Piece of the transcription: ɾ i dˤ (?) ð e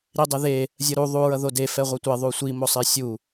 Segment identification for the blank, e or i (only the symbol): e